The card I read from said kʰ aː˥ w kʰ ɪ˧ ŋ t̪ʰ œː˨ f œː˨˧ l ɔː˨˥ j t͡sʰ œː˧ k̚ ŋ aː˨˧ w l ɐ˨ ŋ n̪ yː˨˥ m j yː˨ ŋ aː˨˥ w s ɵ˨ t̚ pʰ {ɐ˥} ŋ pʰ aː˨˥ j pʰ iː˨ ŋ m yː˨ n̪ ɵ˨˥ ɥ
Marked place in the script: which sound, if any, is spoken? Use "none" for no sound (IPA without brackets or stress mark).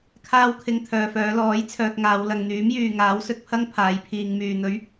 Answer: ɐ˥